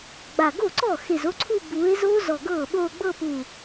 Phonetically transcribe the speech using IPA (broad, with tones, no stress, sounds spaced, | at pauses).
ɡ͡b a˧˩ ɡ o˥˩ ǀ ɔ˥˩ x e˧˩ z o˥˧ ǀʰ u˥˧ b uː˨˦ e̯ z o˦˥ z ɔ˧˩ ɡ ɤː˥˩ ɓ oː˥˧ ɡ͡b ɤ˥˧ p uː˧˩